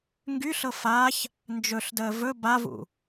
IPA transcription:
ŋ ɡ y ɬ ɤ f a ç | n d͡ʒ ɵ ɬ d əː v ɵ b a v ṵ

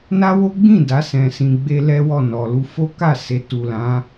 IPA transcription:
n a˦ w o˦ ɡ͡b ĩ˦˨ d a˨˦ s ɛ̃˧ s ĩ˧ ɡ͡b e˦ l ɛ˦ w ɔ˦˨ n ɔ˨ l u˧ f o˦ k a˦˨ s e˨ t u˨ l ã˨˦

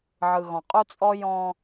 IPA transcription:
ʕ ɯ˨ ɣ ɔ̃˨ qʼ u˦ t͡sʼ ɔ˦ j ɔ̃ː˦

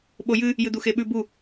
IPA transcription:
ɓ o j ɨ | j ɨ d̪ u x e ɓ ʉ b u

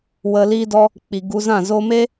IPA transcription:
w ə˧ l iː˦ d ɔ˦ | k͡p i˨ ɡ u˧ z ã˦˨ z o˧ m e˦

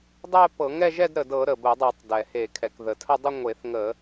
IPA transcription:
dˤ ɛ˥˧ p ɤ˧˩˧ ŋ ɛ˥˧ ʒ ɛ˥˧ d ɾ ə˩ d ɤ˧˩˧ ɾ ə˩ b ə˧˩˧ dˤ ɤ˧˩˧ tˤ d ɛ˩ h e˧˩˧ kʰ ɛ˩ k ð ə˩ tʰ ə˥˧ dˤ ə˥˧ ŋʷ e˧˩˧ θ ŋ ə˧˩˧

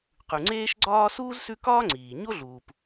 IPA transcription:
q ʉ˨ ŋ͡ǀ eː˥ ʃ ɡ͡ǀ ɒː˥ s uː˥ z s ʉ˦ k ɒː˥ ŋ͡ǀ iː˩ ɲ o˥ ɮ uː˩ p

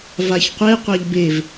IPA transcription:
v a ç qʷ e qʷ a ʎ b e v

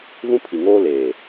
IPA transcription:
v ũ˦ pʰ i˨ ŋ oː˦ l eː˨

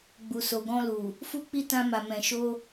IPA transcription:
ɡ͡b u˨ s o˨ ɡ ɔ̃˧ l u˨ | f u˦ k͡p i˦ t ã˧ m a˨ m ɛ̃˨ ʃ o˧

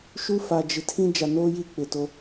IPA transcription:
ʃ u˦ f a˨ d͡ʒ ɪ˨ tʰ ĩ˦ d͡ʒ a˨ n oː˦ j i˦˨ k͡p ɪ˨ t o˦

